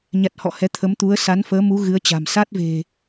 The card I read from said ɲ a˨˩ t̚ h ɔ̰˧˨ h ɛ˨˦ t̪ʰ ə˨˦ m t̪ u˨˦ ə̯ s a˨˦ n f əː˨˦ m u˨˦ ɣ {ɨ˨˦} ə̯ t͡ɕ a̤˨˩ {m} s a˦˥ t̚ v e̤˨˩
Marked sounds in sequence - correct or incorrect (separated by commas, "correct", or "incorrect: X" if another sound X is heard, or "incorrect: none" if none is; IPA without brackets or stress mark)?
correct, correct